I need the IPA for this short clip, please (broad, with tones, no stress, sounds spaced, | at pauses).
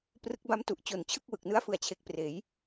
p r ɯ˦˥ k̚ b a˦˥ m t u˨˩ ʔ t͡ɕ o˨˩ n t͡ɕʰ ɯ˥˩ k̚ w ɯ˨˩ k̚ n ɯ˦˥ a̯ f ɯ˨˩ a̯ t͡ɕʰ e˨˩ k̚ p r eː˩˦ j